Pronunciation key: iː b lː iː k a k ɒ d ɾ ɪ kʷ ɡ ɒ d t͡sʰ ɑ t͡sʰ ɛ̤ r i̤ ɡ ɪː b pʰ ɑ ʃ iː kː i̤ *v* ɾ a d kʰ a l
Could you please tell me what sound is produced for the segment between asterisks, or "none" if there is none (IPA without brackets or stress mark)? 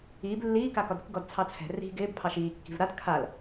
v